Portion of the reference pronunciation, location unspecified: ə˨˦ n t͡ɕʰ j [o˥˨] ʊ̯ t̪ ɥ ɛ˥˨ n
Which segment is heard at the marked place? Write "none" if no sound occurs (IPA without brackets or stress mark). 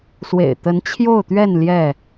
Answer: o˥˨